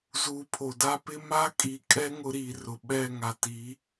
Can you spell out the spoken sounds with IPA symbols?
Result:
z uː˨ pʰ o˨ d a˦ p ɪ˦ m a˦ kʼ i˨ kʼ ɛ˦ ŋ ʊ˦ ɾ iː˨ r ʊ˨ ɓ ɛ˦˨ ŋ a˨ t i˨˦

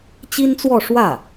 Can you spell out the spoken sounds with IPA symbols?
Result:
t͡ɕ i˥ n t͡s w ɔ˥˧ ʂ w ä˥˩

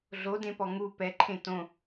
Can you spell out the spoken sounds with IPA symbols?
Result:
ɮ o d ẽ p ɔ ŋ u p ɛ ǃʰ ẽ t õ

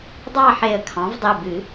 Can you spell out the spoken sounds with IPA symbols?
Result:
dˤ ɑ˥˧ ħ e˧˩ ə̯ kʰ ɑ̃˩˥ v dˤ i˩˧˩ b ɨ˨˩˦

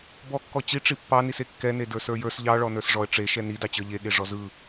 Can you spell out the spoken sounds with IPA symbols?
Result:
b ɔ kː ɔ t͡ɕ i ʈ͡ʂ i pː ɑ n i s e kː ɛ n e d ə˞ s ə˞ j ə˞ s ʎ ɑ ɭ ɔ n ə˞ s ʐ ɔ ə̯ ʈ͡ʂ e ʃ ɛ n i d ɑ t͡ɕ ə˞ ʎ e ɠ e ʐ ɔ z ɯ

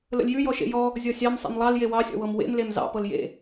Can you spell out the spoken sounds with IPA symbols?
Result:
l ə̰ lʲ j ʉ j ɔ ʃ ḛ j ɔ | zʲ ɔ sʲ ɑ m sˤ ḛ m lˠ ɑ l j e w ɑ sʲ ɔ̰ w ɤ m w ḛ m l e m z ɑ̰ p ɤ l j ḛ

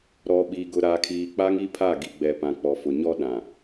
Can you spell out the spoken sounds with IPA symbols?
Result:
ɾ ɔ˨ ɓ i˨ ɡ ʊ˨ ɾ a˨ kʰ iː˨ k͡p a˦ ŋ i˦ pʰ a˦˨ ɡ i˨ ɡ͡b ɛ˨ p ã˨ k͡p ɔ˨ f ʊ˨ ɲ ɔ˦ ɗ ã˨

